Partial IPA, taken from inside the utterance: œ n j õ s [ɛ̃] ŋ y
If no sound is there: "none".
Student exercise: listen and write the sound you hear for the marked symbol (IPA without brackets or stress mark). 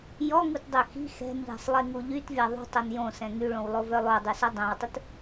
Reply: ɛ̃